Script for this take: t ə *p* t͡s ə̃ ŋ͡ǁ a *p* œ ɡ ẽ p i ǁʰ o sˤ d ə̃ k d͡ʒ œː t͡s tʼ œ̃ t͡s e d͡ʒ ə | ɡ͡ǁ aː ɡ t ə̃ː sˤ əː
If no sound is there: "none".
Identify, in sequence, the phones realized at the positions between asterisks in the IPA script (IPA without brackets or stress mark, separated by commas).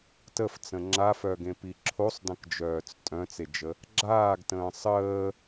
f, f